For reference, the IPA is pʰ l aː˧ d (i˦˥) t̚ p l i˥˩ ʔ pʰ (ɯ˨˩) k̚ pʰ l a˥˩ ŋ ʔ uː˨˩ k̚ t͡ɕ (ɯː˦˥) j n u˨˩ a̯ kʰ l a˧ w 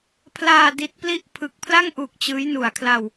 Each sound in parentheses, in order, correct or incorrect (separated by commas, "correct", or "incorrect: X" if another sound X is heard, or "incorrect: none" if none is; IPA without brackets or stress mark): correct, correct, correct